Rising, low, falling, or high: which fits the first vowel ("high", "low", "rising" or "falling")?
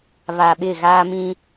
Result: low